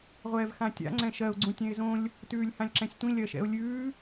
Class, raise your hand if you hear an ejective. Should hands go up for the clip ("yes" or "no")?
no